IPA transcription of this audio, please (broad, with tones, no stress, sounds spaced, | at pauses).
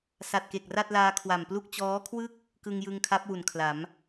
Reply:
s a˨˩ t̚ k e˨˩ k̚ r a˥˩ t̚ l aː˧ kʰ w a˨˩ m p l u˥˩ k̚ t͡ɕ ɔː˦˥ kʰ w ɯ˥˩ k̚ | k ɯ˧ ŋ j ɯ˧ ŋ kʰ a˦˥ p̚ w u˩˦ n kʰ l a˩˦ m